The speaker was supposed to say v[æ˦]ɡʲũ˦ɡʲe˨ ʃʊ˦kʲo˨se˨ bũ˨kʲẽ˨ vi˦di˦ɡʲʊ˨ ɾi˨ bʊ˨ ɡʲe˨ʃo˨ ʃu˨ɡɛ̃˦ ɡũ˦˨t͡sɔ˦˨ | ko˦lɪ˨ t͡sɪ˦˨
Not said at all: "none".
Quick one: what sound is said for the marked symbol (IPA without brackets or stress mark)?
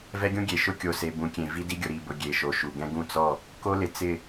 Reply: ɛ˦